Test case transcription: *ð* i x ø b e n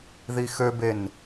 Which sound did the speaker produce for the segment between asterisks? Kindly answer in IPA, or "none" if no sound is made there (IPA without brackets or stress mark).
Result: ð